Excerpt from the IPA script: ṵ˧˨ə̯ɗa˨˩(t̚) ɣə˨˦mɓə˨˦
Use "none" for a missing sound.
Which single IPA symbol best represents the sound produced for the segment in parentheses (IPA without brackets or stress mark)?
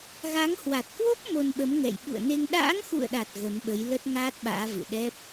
t̚